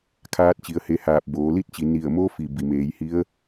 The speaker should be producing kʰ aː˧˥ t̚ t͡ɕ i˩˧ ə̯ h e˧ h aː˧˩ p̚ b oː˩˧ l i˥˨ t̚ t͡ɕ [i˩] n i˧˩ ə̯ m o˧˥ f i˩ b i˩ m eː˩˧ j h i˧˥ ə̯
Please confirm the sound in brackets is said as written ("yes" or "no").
yes